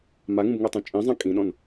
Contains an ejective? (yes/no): yes